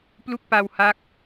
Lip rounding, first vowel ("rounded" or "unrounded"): rounded